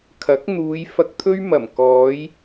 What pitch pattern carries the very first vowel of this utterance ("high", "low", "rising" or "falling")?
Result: rising